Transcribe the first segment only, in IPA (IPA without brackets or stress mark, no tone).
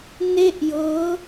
n